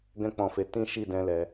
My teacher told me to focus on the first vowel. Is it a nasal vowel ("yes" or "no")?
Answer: yes